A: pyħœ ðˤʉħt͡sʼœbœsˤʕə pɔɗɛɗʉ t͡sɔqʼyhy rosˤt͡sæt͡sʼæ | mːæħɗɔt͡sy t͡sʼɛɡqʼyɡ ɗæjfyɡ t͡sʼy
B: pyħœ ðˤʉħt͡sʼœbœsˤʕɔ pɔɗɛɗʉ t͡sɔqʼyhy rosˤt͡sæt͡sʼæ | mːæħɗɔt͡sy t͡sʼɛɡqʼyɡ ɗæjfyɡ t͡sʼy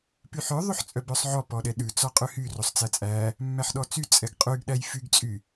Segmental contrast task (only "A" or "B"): B